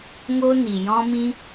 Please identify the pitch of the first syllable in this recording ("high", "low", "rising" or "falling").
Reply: high